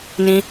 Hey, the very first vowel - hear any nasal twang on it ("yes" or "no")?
yes